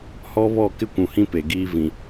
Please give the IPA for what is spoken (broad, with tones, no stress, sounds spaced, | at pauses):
h ɔ˦ β ɔ˦˨ k ɪ˦ kʷ ũ˨ h ĩ˦ p e˨ ɡ iː˦ v ĩ˨